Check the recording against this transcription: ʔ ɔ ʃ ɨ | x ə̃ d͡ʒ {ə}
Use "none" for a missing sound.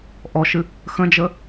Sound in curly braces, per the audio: ə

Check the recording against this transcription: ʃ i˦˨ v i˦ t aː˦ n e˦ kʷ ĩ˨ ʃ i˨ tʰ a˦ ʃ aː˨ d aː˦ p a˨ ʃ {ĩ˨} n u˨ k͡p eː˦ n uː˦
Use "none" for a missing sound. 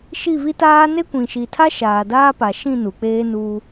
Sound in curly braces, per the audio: ĩ˦˨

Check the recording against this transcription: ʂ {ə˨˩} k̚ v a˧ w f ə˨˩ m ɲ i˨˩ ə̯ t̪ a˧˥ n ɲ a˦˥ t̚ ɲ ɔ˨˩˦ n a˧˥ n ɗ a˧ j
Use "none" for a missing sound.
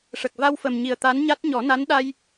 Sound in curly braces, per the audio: ə˨˩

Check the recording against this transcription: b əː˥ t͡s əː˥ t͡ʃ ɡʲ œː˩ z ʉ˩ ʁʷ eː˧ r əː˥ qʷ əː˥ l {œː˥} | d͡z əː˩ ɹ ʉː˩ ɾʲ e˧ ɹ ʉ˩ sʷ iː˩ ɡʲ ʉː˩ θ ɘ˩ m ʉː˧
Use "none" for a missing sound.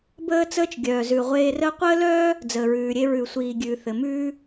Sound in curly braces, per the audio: œː˥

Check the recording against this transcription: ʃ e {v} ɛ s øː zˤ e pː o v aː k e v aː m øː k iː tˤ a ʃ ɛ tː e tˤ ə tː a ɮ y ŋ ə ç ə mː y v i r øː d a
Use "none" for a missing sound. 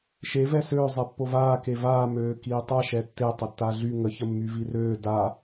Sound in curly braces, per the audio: v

